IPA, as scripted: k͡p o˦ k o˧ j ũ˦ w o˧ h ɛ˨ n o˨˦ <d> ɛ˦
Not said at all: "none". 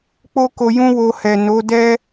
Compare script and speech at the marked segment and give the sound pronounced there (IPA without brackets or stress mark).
d